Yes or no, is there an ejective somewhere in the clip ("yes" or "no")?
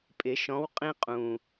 yes